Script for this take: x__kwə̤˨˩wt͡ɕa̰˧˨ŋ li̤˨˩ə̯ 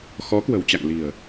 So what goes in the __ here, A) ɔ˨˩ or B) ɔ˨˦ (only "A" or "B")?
B